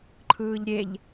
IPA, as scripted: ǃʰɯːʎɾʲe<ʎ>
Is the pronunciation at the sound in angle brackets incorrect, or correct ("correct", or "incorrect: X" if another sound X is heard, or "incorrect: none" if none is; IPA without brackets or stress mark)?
correct